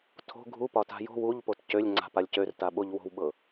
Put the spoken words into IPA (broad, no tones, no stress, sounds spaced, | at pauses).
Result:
tʰ o̤ ɡʱ u p ɒ t a̤ j o̤ w u ʎ p o t c ø lʲ ŋ͡ǀ a̤ p a lʲ c ø r t a ɓ o ʎ w o̤ w ɓ ɤ